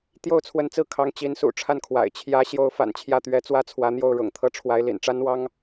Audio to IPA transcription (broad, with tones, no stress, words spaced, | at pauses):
t̪jo˥˩ʊ̯t͡sʰwə˧˥nt͡sɹ̩˥˩ kʰɑ˧˥ŋt͡ɕi˧˥n sṵ˨˩ʈ͡ʂʰa˥˩nkʰwa̰˨˩ɪ̯ t͡ɕʰjä˧˥ ɕjo˧˥ʊ̯fa̰˨˩n t͡ɕʰjä˥˩t̪ɥɛ˧˥ t͡swä˥t͡sʰwä˧˥n̪jo˥˩ʊ̯ ɻʊ̰˨˩ŋt̪ʰɤ˥˩ʈ͡ʂʰwa˧˥ɪ̯lḭ˨˩n ʈ͡ʂa˥nwɑ˥ŋ